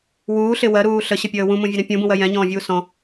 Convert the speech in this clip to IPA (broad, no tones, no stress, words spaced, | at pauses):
wuːɬɪ wɜɾuː ɬəɕəpʲəː wũmũvʲʊɾɛ̃ pʲũbũwɜ jɛ̃ɲɔ̃ːvʲuː sɔ̃